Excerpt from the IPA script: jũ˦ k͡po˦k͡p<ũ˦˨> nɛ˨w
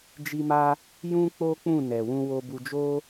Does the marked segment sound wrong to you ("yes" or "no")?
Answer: no